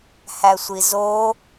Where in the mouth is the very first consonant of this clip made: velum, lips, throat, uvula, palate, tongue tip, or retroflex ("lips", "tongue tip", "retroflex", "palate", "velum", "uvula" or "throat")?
throat